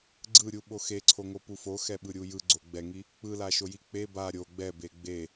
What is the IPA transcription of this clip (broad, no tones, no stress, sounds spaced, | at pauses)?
ɡ͡ǀ ɯ ɾʲ u ɓ o x e ǀʰ o ŋ o p u f o x ɛ ɓ ɯ ɾʲ u j ɯ ɡ͡ǀ o ɡ͡b ɛ ŋ i | k͡p ɯ l a ʃ o j i k͡p e b a ɾʲ o ɡ͡b ɛ b e ɡ͡b e